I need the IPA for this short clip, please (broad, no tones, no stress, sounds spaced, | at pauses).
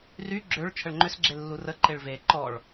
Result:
r y ɡ͡ǁ ø ɭ t͡ʃʰ ə ɭ ŋ͡ǃ ʏ s ɡ͡ǁ e lː u r ə ǃ e ɭ v e ǃ ɔ ɭ